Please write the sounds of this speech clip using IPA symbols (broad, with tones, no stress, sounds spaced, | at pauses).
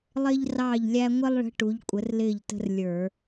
lˠ ɪː˥ ʎ r ɑː˥˩ ʎ lʲ æ˥ ŋʷ ɪ˥ lˠ ɭ ə̤˧˥ ʈ u˩˥ ʎ kʷʼ ə˩˥ r l ɪː˥˩ ʎ t ə̤˥ r lʲ ə˞˧˩˧